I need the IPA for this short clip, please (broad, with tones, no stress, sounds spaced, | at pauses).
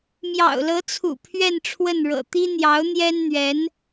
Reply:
m j ɑ̰˨˩ ʊ̯ l ɤ˧˥ t͡sʰ ṵ˨˩ pʰ ɥ ɛ˥˧ n ʈ͡ʂʰ w ə˥˩ n ɻ ɤ̰˨˩ t̪ i˥ n̪ j ɑ˧˥ ʊ̯ n̪ j ɛ˥ n n̪ ɥ ɛ˧˥ n